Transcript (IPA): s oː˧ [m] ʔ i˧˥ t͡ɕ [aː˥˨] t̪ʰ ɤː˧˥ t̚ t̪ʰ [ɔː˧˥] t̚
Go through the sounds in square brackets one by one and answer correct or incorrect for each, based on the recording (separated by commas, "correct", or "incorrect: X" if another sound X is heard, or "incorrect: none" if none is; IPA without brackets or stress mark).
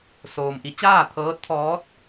correct, correct, correct